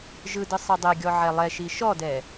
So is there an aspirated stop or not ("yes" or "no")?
no